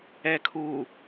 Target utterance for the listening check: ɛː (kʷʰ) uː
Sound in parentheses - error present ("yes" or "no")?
yes